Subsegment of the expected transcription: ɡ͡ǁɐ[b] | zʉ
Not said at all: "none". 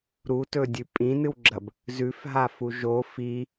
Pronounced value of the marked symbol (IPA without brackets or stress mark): b